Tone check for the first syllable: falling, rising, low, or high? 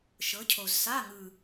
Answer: rising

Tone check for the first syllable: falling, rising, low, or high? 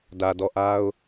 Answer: low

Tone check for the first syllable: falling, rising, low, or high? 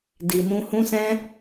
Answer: low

